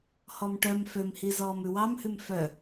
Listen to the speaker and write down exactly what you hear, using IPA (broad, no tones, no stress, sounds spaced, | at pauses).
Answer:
h ɔ m ʈ œ m f ø m h i z ɔː m ʉ w ɑ m h ʉ m f œ